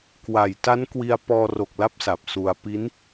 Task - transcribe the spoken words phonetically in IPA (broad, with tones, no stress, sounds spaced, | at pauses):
k w a˨˩ j t a˦˥ n k w i˧ a̯ p ɔː˧ r o˨˩ k̚ l a˦˥ p̚ s a˨˩ p̚ s u˧ a̯ p i˦˥ n